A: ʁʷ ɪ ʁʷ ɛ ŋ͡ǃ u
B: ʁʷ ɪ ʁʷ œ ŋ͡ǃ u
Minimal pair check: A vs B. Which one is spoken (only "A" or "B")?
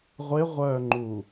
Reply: B